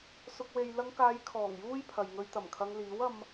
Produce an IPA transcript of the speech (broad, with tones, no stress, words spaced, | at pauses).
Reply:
sʊ˨k̚we˨jlɐ˧ŋkaː˨˧j kʰɔː˨˩ŋ juː˥jpʰɐ˨j ŋɵ˧ɥt̪ɐ˨˩mkʰɐ˧ŋ liː˨˥wɐ˧m